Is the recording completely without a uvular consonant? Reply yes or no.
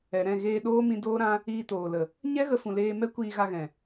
yes